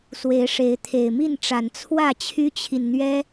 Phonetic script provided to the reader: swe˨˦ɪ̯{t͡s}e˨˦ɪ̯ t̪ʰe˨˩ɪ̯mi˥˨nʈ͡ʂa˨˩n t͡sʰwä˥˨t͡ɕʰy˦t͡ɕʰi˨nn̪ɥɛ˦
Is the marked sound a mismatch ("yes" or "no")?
yes